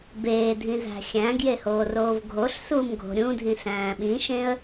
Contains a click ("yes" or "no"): no